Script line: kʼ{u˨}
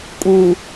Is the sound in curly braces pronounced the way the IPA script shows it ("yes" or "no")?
yes